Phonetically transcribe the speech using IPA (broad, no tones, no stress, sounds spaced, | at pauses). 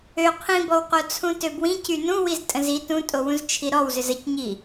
ø qʰ ĩ b ɔ w q o t͡sʰ ũ t ø b w ĩ c y n ũ w i z tʼ ə̃ z i t ũ tʼ o w ũ z t͡ʃʰ i ɾ ɔ w z ʏ z ə c ɲ i